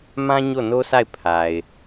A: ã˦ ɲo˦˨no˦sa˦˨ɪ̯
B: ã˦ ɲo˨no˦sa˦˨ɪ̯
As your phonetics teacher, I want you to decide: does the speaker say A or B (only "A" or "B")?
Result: A